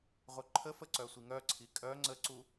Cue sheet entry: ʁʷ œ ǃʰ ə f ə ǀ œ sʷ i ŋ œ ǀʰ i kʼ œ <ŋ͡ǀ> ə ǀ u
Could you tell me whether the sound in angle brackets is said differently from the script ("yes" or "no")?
no